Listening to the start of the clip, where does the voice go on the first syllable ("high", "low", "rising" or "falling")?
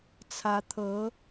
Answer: rising